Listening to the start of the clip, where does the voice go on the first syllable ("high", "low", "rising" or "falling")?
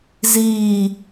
falling